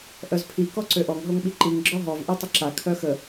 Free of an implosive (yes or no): no